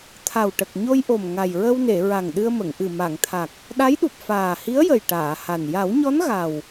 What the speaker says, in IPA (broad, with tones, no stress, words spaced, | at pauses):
t̪ʰa˨˩wʈə˨˩k̚ɲo˧jʔo˨˩m ŋa˨˩jɹə˧wne˨˩˨ ɹa˨˩ŋɗɨ˧ə̯mə˨˩˨ŋʔɨ˨˩ ma˨˩˨ŋt̪ʰa˨˩k̚ | ɗa˧˥jɗu˨˩p̚ faː˨˩hi˧˥ə̯jə˨˩j ʈaː˨˩˨ha˨˩n ja˨˩˦wɲɔ˧˥n ɣa˨˩w